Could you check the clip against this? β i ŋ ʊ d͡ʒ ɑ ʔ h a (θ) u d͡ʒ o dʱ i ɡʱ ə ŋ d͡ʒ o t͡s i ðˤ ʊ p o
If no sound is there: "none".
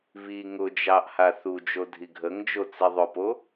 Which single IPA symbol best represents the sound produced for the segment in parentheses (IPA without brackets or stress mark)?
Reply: θ